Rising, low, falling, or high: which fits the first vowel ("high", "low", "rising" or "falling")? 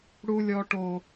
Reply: high